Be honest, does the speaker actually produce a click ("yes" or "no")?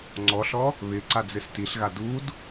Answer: yes